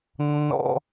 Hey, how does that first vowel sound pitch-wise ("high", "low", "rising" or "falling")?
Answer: high